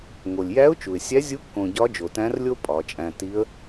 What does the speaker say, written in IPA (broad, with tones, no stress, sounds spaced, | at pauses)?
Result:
ŋ o˩ lʲ j æ˧˥ ʊ̯ t͡ʃ u˩ ɪ̯ sʲ æ˧˥ zʲ u˧˥ kː õ˧ ɟ ɒ˧˥ d͡ʒ o˩ t æ̃˧˥ r lʲ o˥ pʼ ɒ˩˧ t͡ʃʼ æ̃˧ t i˧˥ ə̯